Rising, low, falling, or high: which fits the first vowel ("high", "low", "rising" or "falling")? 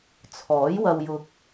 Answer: rising